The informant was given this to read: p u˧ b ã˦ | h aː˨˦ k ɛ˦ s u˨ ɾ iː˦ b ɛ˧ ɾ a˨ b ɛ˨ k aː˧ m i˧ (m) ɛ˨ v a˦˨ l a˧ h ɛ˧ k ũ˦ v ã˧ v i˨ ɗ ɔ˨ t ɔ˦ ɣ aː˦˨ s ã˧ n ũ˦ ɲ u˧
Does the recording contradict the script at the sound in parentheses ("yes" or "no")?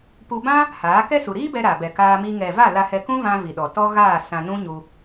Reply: yes